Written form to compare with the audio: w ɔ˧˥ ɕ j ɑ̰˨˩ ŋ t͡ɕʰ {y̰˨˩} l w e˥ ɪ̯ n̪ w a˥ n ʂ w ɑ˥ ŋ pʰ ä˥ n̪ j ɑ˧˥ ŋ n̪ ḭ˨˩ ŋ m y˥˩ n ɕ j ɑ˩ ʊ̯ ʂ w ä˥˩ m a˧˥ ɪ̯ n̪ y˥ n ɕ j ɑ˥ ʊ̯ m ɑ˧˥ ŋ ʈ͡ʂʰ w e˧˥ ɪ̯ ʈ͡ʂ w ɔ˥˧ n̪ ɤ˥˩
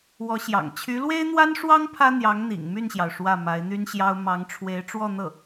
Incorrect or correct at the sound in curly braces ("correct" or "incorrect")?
incorrect